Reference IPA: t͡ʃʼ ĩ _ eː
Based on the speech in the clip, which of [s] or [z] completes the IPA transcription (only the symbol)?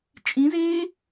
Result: z